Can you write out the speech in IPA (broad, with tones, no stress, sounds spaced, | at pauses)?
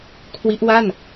kʰ w i˦˥ ʔ w a˥˩ n